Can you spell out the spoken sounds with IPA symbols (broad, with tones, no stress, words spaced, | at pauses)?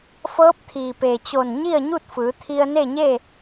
fɤː˧˥p̚t̪ʰiː˩peː˩t͡ɕo˧˩n ɲi˥˨ə̯ɲu˥˨t̚fɯː˩˧ t̪ʰi˧ə̯ne˥˨ɲe˥˨